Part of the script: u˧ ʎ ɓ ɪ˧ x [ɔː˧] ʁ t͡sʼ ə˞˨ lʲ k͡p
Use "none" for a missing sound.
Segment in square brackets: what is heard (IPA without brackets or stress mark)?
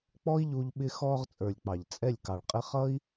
ɔː˧